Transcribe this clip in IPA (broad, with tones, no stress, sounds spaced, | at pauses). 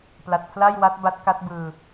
p l a˨˩ t̚ pʰ l a˥˩ j w a˦˥ t̚ b a˦˥ t̚ k a˦˥ t̚ b ɯː˧